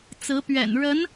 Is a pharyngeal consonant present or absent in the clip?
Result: absent